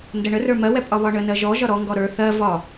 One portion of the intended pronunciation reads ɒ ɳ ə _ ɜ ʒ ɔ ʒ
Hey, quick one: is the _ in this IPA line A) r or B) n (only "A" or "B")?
B